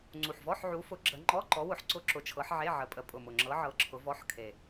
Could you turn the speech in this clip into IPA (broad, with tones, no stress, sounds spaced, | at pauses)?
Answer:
ŋ͡ǀ u˨˩ ħ v ɔ˧˥˧ ħ ʕ u˨˦ f ʊ˨˦ ɡ͡ǁ ə˨˦ ŋ͡ǃ ɔ˧˥˧ ǃ ɔ˨˦ w ʊ˨˦ ħ ǀ ʊ˧˥˧ ǁ ʊ˨˦ t͡ʃʰ ɤ˨˦ ħ ʕ e˧˥˧ ʕ ə˨˦ pʼ ə˨˦ pʼ ʊ˨˩ m ʊ˨˩ ŋ͡ǁ ɤ˨˦ ʕ ɤ˨˦ ǁʰ ʊ˨˦ v ɔ˧˥˧ ħ kʰ e˨˩